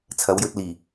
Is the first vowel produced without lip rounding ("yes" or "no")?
yes